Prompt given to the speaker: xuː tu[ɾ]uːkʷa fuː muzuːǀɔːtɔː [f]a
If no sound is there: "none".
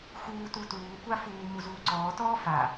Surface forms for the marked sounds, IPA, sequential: t, f

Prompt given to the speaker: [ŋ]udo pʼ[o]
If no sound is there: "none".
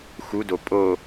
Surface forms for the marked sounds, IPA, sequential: x, o

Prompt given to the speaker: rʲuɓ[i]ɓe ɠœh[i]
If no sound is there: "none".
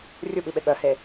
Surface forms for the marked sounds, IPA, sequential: i, e

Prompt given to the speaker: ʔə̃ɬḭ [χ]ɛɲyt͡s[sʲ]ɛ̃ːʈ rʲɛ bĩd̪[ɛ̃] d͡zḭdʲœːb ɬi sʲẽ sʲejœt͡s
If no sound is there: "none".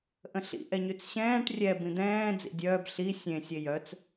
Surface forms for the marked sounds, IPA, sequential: ʔ, ɕ, ɛ̃ː

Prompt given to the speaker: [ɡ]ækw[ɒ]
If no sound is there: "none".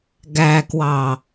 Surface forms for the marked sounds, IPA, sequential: ɡ, ɑ

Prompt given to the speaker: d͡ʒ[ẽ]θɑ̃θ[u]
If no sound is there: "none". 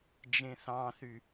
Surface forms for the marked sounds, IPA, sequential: ẽ, y

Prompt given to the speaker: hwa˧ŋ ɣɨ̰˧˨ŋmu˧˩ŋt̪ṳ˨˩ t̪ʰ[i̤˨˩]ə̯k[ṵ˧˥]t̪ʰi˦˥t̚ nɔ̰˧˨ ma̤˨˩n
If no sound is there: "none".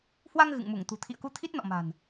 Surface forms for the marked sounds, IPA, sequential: ḭ˧˨, u˧

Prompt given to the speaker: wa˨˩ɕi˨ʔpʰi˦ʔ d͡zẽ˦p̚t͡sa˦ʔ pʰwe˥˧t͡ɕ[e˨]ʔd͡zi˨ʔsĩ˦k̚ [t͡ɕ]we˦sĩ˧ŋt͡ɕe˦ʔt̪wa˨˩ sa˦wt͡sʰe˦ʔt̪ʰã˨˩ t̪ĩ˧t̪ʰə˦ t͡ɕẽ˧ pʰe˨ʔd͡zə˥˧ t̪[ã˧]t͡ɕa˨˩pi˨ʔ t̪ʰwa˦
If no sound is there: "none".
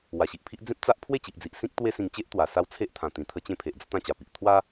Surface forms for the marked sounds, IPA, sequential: i˨, t̪, ã˥˧

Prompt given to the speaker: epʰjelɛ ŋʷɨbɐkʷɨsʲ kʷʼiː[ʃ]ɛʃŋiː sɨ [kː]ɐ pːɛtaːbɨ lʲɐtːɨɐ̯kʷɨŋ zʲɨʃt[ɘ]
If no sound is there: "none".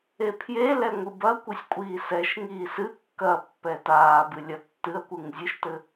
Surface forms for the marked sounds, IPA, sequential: s, kː, ɘ

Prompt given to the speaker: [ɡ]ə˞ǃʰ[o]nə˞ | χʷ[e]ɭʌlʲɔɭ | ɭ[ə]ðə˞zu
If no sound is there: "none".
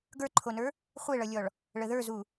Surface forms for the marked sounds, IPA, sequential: ɡ, o, e, ə

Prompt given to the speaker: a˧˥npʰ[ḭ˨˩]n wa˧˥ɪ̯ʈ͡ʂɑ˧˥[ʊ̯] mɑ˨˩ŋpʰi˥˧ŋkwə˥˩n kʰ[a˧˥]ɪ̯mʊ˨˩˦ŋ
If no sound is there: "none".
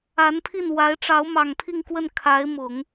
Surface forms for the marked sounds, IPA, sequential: i˥˩, ʊ̯, a˧˥

